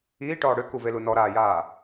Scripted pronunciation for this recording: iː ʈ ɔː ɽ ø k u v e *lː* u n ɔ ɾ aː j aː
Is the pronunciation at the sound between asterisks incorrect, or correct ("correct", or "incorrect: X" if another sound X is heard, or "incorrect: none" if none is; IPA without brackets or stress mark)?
incorrect: l